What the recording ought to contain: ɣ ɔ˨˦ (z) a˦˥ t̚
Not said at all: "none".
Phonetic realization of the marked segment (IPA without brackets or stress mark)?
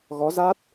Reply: z